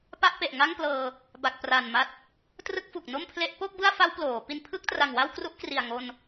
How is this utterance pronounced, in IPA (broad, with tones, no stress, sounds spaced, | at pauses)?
p a˥˩ ʔ p e˨˩ ʔ ŋ a˥˩ ŋ p l ɤː˧ | b a˨˩ k̚ p r a˨˩ n m a˦˥ t̚ | t r ɯ˥˩ k̚ f u˨˩ k̚ n o˥˩ m pʰ l e˦˥ ʔ p o˥˩ k̚ b ɯ˥˩ a̯ f a˦˥ w p l oː˩˦ p i˧ n pʰ ɯ˥˩ k̚ t r a˨˩ ŋ w a˥˩ w k r u˦˥ ʔ k r i˨˩ a̯ ŋ o˧ n